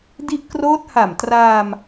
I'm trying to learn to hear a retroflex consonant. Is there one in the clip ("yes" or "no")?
no